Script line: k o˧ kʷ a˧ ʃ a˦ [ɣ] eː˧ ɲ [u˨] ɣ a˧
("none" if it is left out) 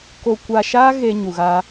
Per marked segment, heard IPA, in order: ɣ, u˨

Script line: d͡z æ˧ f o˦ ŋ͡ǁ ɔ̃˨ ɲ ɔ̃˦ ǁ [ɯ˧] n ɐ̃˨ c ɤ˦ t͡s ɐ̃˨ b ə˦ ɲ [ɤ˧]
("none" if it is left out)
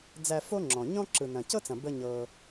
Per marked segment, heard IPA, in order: ɯ˨, ɤ˧

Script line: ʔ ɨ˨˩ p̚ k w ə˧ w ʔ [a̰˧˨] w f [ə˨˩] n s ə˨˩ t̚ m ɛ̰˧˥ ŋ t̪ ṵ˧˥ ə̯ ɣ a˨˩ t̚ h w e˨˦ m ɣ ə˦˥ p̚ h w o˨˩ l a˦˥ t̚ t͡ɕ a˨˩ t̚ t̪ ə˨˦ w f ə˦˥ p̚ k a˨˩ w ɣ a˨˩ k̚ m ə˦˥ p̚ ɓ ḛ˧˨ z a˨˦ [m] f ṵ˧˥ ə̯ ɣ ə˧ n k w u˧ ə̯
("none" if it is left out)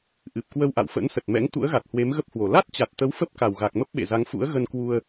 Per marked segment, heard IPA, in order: a̰˧˨, ə̰˧˥, ŋ

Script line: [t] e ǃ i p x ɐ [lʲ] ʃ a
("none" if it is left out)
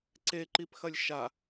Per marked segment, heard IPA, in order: ǀ, lʲ

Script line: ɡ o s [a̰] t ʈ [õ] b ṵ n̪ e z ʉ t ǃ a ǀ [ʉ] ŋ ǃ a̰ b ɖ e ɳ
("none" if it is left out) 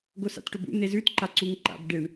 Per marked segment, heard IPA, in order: a̰, o, u

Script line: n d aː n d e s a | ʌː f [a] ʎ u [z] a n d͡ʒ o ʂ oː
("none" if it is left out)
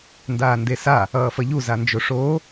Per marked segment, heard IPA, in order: ʌ, z

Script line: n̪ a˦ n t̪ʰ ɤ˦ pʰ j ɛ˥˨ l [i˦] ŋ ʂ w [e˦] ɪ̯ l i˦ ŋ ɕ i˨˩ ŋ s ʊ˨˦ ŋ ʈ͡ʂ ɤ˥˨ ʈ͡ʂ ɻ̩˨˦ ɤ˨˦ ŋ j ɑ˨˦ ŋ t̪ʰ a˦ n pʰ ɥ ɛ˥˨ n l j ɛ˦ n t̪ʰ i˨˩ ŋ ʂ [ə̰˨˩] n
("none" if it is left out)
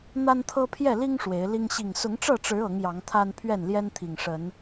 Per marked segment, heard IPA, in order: i˦, e˨˦, ə˨˦

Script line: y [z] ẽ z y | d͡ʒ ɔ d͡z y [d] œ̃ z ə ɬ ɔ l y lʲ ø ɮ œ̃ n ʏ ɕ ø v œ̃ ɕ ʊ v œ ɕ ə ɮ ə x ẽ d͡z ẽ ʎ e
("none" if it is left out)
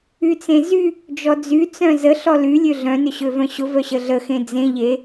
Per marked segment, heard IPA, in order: t͡s, t͡s

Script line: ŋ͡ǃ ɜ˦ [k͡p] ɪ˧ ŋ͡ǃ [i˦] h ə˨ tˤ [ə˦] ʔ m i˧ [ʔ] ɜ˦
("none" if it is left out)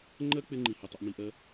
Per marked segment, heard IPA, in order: k͡p, i˨, ə˧, ʔ

